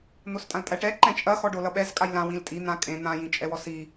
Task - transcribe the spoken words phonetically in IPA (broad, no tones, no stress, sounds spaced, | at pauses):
n̪ o s tʼ ã l tʼ æ ʈ ɛ ǃ ɛ̃ t͡ʃʼ ɐ x ɔ ɖ o l ʌ ɓ ɛ z kʼ a j l ã w ĩ l tʼ i n̪ ã kʼ ẽ n̪ ã j ĩ t͡ʃʼ ɛ w ɔ s i